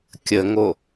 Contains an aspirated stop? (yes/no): no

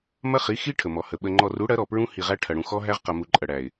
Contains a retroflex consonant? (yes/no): yes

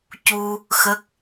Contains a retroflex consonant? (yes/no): no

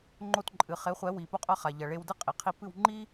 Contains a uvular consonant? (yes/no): yes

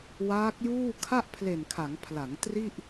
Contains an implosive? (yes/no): no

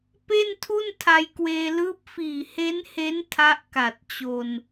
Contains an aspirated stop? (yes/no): yes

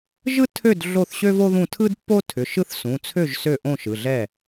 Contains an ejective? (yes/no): no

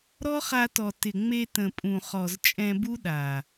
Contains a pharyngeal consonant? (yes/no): no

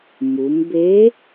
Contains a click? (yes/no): no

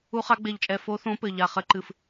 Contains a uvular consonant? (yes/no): yes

